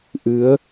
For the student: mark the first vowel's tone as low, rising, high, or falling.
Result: rising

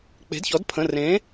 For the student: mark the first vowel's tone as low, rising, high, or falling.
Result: rising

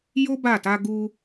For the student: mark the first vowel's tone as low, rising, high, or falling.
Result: high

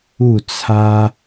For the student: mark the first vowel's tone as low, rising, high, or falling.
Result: falling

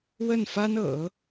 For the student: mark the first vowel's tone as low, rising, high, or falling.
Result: falling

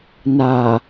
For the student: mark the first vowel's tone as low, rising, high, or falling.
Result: low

